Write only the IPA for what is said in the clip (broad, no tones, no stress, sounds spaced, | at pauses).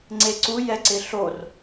ŋ͡ǀ e ǀ u j ɛ ǀ ɪ ɬ o r